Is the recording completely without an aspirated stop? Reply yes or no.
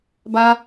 yes